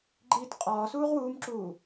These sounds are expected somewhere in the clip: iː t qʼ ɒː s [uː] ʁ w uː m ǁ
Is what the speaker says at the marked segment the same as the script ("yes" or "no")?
yes